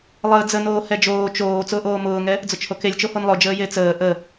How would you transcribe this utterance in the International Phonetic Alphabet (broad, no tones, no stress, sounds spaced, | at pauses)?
lˠ əː d͡z ə n oː h ɛ d͡ʒ oː t͡ʃ oː t͡s ʊː ʔ oː m ʊː ŋ ɛ | d͡z ʊ t͡ʃ h o k e lʲ t͡ʃ o h o n lˠ ʊ d͡ʒ əː j e t͡s əː ʔ ə